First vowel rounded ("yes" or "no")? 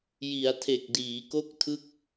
no